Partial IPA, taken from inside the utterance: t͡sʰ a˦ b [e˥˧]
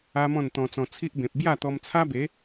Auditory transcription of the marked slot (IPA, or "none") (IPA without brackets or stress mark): e˨˦